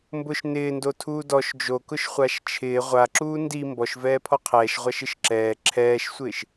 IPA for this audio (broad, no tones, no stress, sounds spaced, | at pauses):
m b ʊ ʃ n ɪː n d o tʰ uː d ɔ ʃ d͡ʒ o k ʊ ʃ χʷ a ʃ t͡ʃʰ ɪː ʁʷ a ǁ uː n d i m b ɔ ʃ v ɛː pʰ ɔ qʰ ɛː ʃ ʁʷ a ʃ ɪ ʃ ǁ ɛː ǁʰ ɛː ʃ sʷ ɪː ʃ